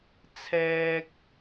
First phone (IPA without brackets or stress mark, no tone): t͡sʰ